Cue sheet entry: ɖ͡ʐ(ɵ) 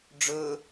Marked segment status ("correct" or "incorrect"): correct